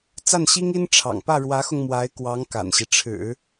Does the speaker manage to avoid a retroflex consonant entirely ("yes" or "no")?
no